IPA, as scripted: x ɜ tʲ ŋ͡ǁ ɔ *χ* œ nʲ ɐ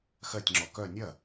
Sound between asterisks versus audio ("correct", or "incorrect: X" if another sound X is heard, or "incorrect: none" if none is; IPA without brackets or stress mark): incorrect: k